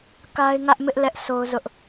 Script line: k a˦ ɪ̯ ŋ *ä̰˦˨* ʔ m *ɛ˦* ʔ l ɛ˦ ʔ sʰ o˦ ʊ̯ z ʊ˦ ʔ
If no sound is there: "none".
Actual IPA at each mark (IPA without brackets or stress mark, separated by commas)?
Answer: ä˦, ɪ˦